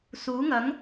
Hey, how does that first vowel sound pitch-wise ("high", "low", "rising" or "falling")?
rising